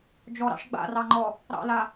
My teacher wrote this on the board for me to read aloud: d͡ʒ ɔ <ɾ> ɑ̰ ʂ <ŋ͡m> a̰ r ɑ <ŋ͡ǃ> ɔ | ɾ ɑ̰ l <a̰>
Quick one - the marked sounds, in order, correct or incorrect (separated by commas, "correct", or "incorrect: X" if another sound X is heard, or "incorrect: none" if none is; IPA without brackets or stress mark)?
correct, incorrect: ɡ͡b, correct, incorrect: a